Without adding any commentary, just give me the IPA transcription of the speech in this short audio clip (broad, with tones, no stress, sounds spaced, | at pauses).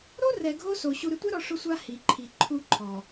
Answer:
ɾ o˦ r ɛ˨ ɡʱ o˦ s o˨ ɕ u˨ ɾ ɪ˨ tʷ ɛ˦ ɾ ɔ˨ ʂ ʊ˦ sʷ a˦ h i˨ ǃʰ i˨ ǃʰ u˦ ǃʰ ɔ˨